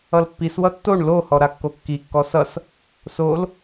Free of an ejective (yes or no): yes